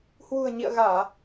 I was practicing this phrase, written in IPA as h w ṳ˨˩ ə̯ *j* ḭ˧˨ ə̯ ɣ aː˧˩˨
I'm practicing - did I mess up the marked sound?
yes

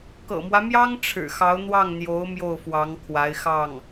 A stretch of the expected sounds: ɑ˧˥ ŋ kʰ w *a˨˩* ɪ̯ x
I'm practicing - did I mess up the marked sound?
yes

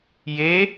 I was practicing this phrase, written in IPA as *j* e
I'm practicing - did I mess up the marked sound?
no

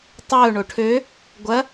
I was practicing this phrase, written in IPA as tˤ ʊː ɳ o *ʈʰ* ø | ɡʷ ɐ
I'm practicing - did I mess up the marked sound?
no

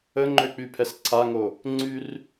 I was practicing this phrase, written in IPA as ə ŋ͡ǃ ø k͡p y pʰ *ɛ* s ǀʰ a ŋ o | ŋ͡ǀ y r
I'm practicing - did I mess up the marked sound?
no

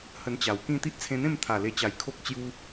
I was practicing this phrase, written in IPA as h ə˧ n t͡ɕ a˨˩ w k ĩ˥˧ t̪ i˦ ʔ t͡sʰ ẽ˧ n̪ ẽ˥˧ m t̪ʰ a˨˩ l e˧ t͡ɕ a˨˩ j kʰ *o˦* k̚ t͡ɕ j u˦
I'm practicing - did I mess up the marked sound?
no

